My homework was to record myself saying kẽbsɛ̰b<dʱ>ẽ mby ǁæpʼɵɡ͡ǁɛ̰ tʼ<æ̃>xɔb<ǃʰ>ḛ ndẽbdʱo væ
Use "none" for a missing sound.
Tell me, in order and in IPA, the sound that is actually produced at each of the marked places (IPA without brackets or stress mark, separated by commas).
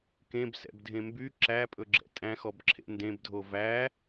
dʱ, æ̃, ǁʰ